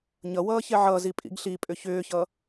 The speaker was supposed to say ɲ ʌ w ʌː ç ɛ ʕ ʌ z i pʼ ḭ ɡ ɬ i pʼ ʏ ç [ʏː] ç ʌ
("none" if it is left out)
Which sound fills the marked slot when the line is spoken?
ʏː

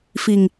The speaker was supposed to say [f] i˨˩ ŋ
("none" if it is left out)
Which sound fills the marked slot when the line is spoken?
f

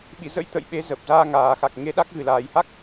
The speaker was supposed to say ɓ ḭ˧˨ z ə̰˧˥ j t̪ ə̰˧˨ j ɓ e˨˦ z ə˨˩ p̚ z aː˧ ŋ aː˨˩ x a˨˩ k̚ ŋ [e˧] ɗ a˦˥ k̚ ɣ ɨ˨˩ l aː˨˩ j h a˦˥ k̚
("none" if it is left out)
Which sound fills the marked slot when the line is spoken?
e˧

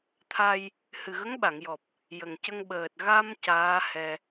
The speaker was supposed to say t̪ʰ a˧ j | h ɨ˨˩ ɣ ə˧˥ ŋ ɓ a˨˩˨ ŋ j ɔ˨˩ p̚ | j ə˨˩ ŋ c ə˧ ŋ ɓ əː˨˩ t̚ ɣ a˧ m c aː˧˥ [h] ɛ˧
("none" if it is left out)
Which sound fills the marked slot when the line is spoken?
h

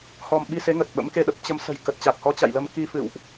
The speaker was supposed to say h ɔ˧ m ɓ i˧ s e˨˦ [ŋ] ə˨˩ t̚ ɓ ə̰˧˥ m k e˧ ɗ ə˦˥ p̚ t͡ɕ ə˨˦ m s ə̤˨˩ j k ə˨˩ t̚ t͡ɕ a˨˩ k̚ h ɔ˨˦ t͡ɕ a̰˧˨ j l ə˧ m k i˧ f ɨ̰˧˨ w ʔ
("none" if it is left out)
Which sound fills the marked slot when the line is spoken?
ŋ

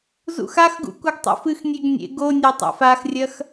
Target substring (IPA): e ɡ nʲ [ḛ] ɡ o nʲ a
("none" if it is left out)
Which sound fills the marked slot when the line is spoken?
ḛ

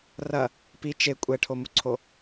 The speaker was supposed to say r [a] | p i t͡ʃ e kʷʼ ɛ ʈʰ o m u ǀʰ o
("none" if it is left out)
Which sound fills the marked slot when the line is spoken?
ɐ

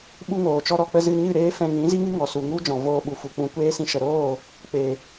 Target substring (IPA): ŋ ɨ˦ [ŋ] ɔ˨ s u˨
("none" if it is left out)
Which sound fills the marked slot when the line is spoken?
ŋ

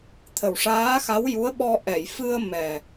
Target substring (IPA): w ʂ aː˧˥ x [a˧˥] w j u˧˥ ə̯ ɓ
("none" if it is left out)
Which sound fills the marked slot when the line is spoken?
a˧˥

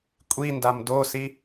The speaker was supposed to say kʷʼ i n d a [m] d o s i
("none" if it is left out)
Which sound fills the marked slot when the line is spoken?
m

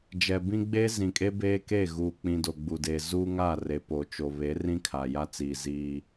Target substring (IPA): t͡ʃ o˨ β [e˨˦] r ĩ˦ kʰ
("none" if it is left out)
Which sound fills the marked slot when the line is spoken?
e˨˦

